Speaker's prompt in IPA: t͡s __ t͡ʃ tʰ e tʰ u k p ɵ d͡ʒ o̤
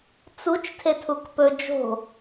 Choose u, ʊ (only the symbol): u